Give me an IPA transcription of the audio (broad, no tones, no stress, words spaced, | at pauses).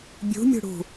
bʲṳmʲṳ ɽṳ